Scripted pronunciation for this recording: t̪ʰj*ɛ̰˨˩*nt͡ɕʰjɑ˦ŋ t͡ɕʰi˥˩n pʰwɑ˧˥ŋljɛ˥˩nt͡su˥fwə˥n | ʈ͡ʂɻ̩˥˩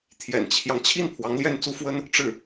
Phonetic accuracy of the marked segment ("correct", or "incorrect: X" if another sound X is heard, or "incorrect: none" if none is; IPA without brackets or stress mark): correct